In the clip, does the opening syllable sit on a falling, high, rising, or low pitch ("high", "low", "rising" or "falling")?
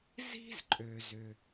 high